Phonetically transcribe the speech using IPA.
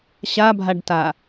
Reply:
ɕabʱaɖta

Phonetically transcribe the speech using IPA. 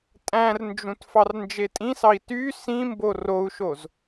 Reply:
tʼæ̃rnd͡ʒũt fɑrnd͡ʒetʼĩsɑi̯ ty sĩmbo rou̯ʃoz

